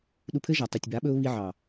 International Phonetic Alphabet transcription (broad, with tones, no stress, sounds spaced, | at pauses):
ɗ u˧ pʰ ɘ˦ ʒ a˨ tˤ u˨ tʲ b a˨˦ ɓ ɵ˦ ʊ̯ β i˧ ʕ ɑ˨